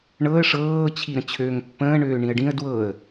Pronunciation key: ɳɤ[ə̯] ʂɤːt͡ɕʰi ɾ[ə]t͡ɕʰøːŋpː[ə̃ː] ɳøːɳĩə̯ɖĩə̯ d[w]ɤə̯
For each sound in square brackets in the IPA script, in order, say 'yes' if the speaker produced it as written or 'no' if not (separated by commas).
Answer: yes, no, yes, yes